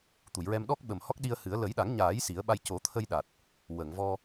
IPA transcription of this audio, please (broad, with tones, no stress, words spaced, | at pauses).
t̪u˨˩˨jɹɛ˧m ɗɔ˦˥k̚ɓə˨˩m hɔ˦˥k̚ɗi˧ə̯hɨ˨˩˦ə̯ lə˨˩˦jɗa˨˩˦ŋɲaː˨˩˦j si˨˩˦ə̯ɓa˧j co˨˩˦t̪ʰə˧j ɗa˨˩t̚ | wə˨˩˨ŋvɔ˧